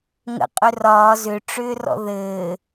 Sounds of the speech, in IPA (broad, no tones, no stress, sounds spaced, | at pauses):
ŋ ə̰ qʼ ʏ r ɒː z ʏ ʈ͡ʂ ʏː r ɔ̰ ð ɘː